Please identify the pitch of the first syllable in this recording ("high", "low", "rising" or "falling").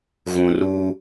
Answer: low